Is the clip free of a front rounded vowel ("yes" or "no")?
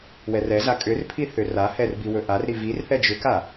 no